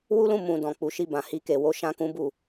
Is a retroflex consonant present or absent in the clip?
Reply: absent